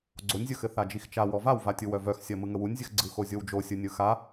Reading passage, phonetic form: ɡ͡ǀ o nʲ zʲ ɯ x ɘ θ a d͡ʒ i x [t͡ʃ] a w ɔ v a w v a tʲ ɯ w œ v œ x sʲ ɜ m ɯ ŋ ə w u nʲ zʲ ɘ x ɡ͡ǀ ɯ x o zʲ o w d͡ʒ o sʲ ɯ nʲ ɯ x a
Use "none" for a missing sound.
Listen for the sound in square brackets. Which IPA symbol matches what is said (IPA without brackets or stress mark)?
t͡ʃ